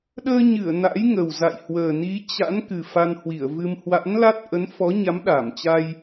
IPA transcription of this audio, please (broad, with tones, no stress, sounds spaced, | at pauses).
ɗ əː˧ ɲ ɨ˧˩ ə̯ n a̰˧˥ j ŋ ə˨˩ w z a̰˧˨ j h w əː˨˩ n i˨˦ t͡ɕ a̰˧˥ n k ɨ˨˩ f a˧ n h w i˧˩ ə̯ v ɨ˧ m h w a̰˧˥ n l a˦˥ t̚ ʔ ə˨˦ n f ɔ˨˦ ɲ a˨˦ m ɗ a˧˩ m t͡ɕ a˧ j